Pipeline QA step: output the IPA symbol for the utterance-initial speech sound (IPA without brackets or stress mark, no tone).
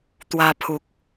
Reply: t̪